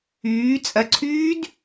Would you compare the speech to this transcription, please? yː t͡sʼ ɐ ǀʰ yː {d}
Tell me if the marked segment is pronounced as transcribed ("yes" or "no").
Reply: yes